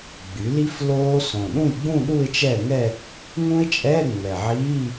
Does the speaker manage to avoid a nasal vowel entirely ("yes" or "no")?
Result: no